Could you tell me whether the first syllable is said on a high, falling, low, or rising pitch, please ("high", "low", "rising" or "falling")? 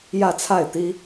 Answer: falling